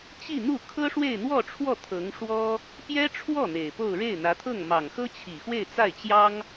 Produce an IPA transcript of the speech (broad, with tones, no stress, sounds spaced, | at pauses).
t͡ɕ i˥˧ n̪ u˥˩ kʰ ɤ˥ ʂ w e˥˧ ɪ̯ n̪ w ɔ˥˧ ʈ͡ʂʰ w ɔ˥˩ t̪ʰ ɤ˧˥ ŋ ʂ w ɔ˥ | p j ɛ˥ ʈ͡ʂʰ w ɔ˥˩ n̪ e˨˩ ɪ̯ p o˥˧ ʊ̯ ɻ e˥˩ ɪ̯ n̪ ä˧˥ t̪ʰ ɤ˥˩ ŋ m ɑ˨˩ ŋ x ɤ˥ t͡ɕʰ i˨˩ x w e˥˧ ɪ̯ t͡s a˥˩ ɪ̯ t͡ɕ j ɑ˥ ŋ